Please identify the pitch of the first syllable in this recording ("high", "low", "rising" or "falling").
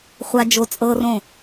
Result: low